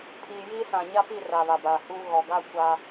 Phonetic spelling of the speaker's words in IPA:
pʰ iː˨ j iː˦ s ã˨ ɲ a˦ p i˦˨ r a˨ β a˨ b aː˨ h uː˦ ɣ ɔ˨ ɡ a˦ kʷ a˦

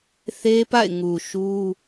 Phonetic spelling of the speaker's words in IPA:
θ e˦ p a̰˦˨ ɪ̯ ŋ u˨ ʃ u˦

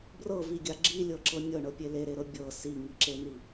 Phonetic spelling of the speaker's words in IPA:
b r ɤ v i ɡʲ a ɡ͡ǁ i lʲ ɤ ǁ ɤ nʲ ɤ ɳ ɤ pʲ e l e ɾ e ɾ ɤ bʲ ɤ s i ŋ i ǁ e n̪ i

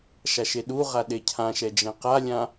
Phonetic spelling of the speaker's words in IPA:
ʃ a ʃ e ɗ u ʁ a ɗ e cʰ ã ʃ ɛ d͡ʒ ɛ̃ q a lʲ ã

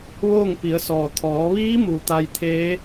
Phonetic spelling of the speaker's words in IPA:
ʋ oː˥˨ ŋ p i˩˧ ə̯ s ɔː˩ t̪ʰ ɔː˩˧ ʋ iː˧˥ m u˩ t̪ a˧ j t̪ʰ eː˧˥

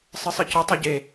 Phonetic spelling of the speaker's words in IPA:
sˤ ɨ sˤ ɨ c ʊ tˤ ɛ ɟ e

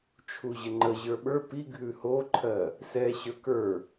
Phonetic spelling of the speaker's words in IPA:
t͡ʃʰ u ʑ ə ŋ͡ǃ ə ʑ ə˞ ɓ ə˞ p i ɡʱ ʉ h o ǃʰ ɜ | s ɛ ɕ ə˞ k ə˞

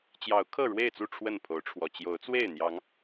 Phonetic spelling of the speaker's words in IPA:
t͡ɕ j ɑ˨˦ ʊ̯ kʰ ɤ˥˨ ɻ w e˥˨ ɪ̯ t͡s u˥˨ ʈ͡ʂʰ w ə˥˨ n pʰ o˨˦ ʊ̯ ʈ͡ʂʰ w ɔ˨˩ t͡ɕ j o˨˦ ʊ̯ t͡s w e˥˨ ɪ̯ n̪ j ɑ˨˦ ŋ

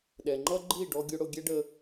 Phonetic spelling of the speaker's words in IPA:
ɗ ɛ˩ ŋ͡ǃ ʌ˥ ɡ͡ǃ i˥˩ ɖ ɔ˥ ɡʲ ʊ˥ ɽ ʊ˥ ɡʲ ɛ˥ ɖ ə˧

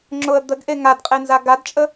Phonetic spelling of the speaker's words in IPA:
ŋ͡ǁ ʊ ə̯ d̪ ə ɡ ʔ e ŋ a d qʼ e n z a ɡ a d t͡ʃʼ ə

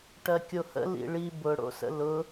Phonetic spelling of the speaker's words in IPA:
ʈ ɜ kʲ o h ə̰ l ḭ ɭ i b ʊ ɽ o̰ s ə̰ l ʊ

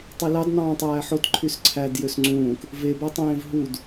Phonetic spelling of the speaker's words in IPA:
tˤ i l ɑ d n̪ ɑ̃ː tˤ æː ħ o t ǃʰ y s ǀʰ æ d j ø s ŋ͡ǀ ũː k | v e b æ tˤ ẽː v ɦ u d

